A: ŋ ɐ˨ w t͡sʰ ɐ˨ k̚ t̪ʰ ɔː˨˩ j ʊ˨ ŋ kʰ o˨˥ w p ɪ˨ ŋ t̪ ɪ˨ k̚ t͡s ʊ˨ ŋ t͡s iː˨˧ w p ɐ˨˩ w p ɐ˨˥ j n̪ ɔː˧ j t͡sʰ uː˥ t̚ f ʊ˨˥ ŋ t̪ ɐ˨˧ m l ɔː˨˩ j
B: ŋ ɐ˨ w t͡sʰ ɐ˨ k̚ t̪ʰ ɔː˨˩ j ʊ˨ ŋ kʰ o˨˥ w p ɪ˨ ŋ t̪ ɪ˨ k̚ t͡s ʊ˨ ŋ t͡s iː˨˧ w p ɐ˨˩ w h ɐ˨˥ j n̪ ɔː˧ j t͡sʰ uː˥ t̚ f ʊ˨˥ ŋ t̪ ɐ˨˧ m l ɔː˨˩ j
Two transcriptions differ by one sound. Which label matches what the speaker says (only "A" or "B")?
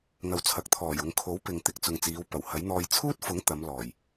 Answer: B